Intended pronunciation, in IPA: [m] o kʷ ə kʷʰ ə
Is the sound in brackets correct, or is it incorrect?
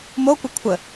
correct